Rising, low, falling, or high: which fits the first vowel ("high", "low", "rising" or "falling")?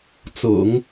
low